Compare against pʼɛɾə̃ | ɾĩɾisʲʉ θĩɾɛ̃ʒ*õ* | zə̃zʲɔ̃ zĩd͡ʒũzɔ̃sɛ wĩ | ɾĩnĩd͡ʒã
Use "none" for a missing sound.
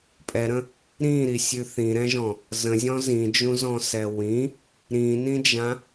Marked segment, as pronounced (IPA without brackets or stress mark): ɔ̃